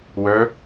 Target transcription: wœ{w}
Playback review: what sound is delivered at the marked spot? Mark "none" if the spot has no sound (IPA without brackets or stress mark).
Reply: none